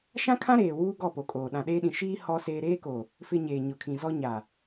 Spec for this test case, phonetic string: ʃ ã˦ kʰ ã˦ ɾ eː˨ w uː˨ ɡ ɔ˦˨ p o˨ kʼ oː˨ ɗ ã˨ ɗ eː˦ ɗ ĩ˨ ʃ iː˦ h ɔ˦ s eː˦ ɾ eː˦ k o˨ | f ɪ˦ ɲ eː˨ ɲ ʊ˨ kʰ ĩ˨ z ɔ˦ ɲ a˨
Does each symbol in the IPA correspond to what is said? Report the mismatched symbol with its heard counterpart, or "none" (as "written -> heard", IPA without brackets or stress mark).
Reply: uː˨ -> uː˦